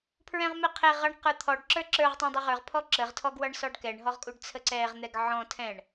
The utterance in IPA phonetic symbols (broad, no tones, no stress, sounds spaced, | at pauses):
pʰ ɹ ɛ̃ ʁ m ɛ qʰ ɛ ʁ ʌ ɳ q ə˞ t̪ʰ ɔ ɖ ǁ ə˞ ǁ ə˞ ʁ tˤ ɛ̃ dˤ ə ʁ ə˞ ʁ pʰ ɔ ǁ ə ʁ tʰ ɔ ɡ w ʌ ɳ s ɔ ɖ k ɛ ɳ ɦ ɔ ʁ kʼ u ɖ t͡sʰ ə ǀ ɛ ʁ n̪ ɛ ɡ ʕ ɔ̃ tʰ ɛ̃ ɳ